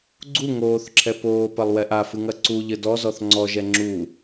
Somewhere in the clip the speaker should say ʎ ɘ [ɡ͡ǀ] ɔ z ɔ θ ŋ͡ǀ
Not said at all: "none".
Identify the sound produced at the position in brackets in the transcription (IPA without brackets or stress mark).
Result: d